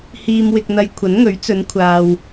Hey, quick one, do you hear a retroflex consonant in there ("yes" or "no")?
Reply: no